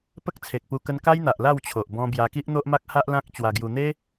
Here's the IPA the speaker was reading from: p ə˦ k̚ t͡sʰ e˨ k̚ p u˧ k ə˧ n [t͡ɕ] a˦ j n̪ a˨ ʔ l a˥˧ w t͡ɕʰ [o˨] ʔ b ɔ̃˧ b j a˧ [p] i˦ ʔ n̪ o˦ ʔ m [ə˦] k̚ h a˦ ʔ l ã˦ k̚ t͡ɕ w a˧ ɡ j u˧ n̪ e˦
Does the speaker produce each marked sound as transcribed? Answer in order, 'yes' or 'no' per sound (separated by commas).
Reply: no, yes, no, no